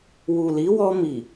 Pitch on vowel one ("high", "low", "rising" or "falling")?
low